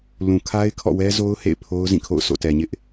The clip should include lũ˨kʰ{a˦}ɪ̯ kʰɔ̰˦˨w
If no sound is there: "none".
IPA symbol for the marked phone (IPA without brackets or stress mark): a˦